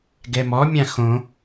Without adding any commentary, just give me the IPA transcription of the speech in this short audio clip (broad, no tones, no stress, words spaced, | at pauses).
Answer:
ɡɛmɔmʲã xõ